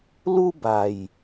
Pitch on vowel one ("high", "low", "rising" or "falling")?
high